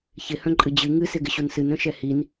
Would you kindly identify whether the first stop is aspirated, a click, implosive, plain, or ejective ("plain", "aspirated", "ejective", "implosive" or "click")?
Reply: click